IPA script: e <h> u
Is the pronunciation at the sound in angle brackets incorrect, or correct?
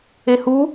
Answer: correct